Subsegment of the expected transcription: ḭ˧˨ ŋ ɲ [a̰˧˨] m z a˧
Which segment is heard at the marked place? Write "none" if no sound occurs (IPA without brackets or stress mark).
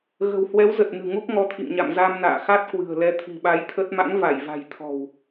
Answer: a̰˧˨